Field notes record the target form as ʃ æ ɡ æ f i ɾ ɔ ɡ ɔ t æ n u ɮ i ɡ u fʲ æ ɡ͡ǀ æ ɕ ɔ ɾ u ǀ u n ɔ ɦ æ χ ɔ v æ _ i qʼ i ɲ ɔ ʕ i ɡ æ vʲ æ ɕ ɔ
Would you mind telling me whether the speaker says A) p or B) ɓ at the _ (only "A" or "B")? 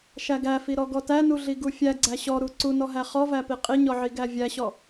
A